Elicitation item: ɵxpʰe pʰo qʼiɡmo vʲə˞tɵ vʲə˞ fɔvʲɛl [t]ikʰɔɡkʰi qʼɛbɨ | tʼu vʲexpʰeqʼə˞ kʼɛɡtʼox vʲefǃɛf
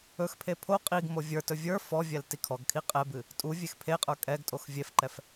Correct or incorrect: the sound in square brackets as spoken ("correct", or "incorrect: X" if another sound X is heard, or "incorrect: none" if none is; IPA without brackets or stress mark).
correct